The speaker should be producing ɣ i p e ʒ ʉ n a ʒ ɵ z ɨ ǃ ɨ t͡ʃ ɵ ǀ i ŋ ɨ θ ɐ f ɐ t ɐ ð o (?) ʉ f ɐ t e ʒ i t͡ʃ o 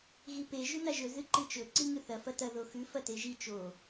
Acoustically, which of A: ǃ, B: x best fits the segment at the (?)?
B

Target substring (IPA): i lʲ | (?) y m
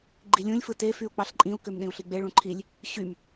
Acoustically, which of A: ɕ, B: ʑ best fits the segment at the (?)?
A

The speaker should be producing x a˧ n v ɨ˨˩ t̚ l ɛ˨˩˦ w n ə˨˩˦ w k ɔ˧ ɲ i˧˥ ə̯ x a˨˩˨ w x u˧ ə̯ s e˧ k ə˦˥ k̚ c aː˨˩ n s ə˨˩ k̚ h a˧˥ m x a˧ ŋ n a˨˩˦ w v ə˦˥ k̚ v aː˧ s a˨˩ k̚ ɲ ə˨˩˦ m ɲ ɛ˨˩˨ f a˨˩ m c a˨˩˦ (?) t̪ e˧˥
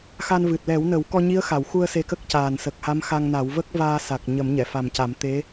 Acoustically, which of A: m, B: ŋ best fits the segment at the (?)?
A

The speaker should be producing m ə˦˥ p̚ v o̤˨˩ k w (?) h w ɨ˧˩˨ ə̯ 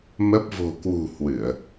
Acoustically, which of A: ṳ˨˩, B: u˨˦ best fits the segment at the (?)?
A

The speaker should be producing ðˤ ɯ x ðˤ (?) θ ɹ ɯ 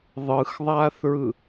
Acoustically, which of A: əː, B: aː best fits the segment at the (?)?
B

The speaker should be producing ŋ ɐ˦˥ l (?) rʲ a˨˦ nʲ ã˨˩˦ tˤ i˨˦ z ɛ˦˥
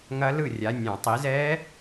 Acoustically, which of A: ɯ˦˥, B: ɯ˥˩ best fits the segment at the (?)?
B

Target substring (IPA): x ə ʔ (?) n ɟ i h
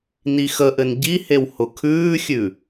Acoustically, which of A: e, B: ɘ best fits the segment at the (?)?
B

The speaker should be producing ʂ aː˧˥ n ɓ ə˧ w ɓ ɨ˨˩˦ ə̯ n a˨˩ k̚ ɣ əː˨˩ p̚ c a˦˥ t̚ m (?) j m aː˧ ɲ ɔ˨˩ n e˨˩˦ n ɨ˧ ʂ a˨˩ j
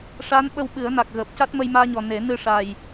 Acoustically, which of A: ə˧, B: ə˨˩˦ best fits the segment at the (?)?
A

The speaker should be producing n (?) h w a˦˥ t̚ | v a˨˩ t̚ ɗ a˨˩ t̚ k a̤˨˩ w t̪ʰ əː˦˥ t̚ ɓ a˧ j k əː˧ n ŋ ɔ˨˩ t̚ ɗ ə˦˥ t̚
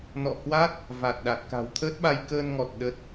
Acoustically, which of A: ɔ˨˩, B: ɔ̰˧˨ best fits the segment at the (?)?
B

